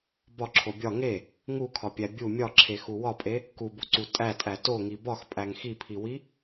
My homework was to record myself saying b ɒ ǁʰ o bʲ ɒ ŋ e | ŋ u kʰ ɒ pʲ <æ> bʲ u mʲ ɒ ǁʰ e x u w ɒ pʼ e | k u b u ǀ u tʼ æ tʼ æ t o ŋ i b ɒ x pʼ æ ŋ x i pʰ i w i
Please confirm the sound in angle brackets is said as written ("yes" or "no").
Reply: yes